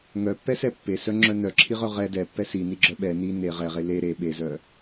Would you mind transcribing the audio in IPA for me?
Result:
ŋ œ pː ɛ s ɛ pː e s œ ŋ͡ǁ œ n œ ǁʰ i ʁ œ ʁ ɛ d ɛ pː ɛ s i n i ɡ͡ǁ œ ɓ ɛ n i n e ʁ ɛ ʁ e l e ɾ e ɓ e z œ

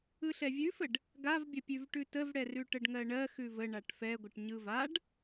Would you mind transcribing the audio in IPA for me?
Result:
ɯ ɬ ɛ vʲ ʉ f ə ɖ | ɡ a v bʲ ə pʲ ʉ v ʈ ʉ t ə v ɽ ɛ r ʉ ʈ ə ɖ ŋ ɜ ɳ ɜ x ʉ v ə ɳ a ʈ f ɛ ɡʷ ə ʈ ɲ ɯ v a ɖ

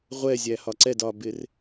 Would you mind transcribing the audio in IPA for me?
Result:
ʁʷ ɛ zʲ æ h ɒ ǀ ɛ d ɒː b ɪː r

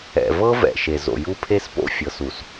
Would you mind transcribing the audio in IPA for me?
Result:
ɛ̰˨ v ɤ˦ v ɛ̰˨ ʃ e˨ z o̰˨ j u˦ pʰ e˦ s p o̰˦˨ fʲ ɤ˨ s u˨ s

